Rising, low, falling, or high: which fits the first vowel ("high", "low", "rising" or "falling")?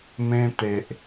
high